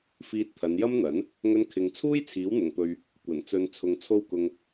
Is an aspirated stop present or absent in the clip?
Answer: present